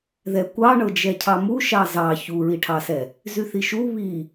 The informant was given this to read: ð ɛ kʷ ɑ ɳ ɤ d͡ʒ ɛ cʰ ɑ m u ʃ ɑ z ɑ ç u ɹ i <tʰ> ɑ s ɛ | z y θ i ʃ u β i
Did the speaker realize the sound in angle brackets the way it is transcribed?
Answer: no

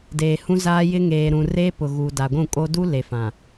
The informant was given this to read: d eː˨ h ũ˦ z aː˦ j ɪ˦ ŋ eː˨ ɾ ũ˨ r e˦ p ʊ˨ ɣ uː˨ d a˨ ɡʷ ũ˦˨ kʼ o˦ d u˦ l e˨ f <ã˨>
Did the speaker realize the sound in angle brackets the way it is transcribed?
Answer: yes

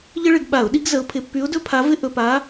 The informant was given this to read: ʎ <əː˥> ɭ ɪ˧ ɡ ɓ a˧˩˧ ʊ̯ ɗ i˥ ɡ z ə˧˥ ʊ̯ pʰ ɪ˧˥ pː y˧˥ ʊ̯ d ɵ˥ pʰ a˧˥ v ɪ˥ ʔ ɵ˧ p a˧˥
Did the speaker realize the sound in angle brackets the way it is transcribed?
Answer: no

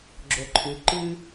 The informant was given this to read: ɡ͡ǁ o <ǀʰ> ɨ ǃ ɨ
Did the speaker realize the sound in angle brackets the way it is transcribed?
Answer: no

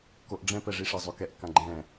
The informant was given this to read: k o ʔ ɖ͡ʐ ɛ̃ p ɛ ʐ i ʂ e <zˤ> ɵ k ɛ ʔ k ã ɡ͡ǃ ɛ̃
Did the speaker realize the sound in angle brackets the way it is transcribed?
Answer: yes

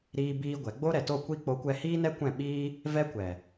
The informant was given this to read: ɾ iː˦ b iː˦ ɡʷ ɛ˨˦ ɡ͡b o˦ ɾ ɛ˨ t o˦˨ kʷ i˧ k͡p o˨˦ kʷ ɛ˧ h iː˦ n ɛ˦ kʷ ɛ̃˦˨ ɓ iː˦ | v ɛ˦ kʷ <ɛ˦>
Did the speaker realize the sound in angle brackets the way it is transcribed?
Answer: no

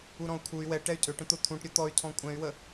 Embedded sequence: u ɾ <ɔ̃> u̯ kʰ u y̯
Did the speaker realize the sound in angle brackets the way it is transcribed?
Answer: yes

